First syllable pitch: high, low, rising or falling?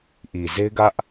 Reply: low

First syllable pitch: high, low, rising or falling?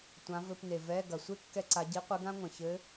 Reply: rising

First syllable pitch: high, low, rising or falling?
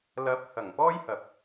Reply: rising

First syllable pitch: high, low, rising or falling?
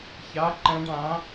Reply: rising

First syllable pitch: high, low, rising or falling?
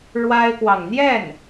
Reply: high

